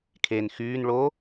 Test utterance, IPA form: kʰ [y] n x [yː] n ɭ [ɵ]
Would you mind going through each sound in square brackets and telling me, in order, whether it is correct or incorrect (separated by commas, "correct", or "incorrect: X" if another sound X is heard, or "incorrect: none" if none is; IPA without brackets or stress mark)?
incorrect: e, correct, incorrect: o